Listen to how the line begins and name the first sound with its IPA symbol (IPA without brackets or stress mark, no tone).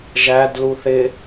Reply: ʒ